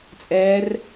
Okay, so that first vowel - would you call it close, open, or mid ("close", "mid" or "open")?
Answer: mid